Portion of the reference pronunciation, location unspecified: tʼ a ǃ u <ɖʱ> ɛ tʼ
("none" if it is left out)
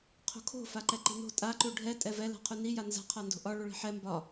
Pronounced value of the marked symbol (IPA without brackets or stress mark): ɖʱ